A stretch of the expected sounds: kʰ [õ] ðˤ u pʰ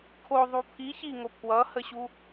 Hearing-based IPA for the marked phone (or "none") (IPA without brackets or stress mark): o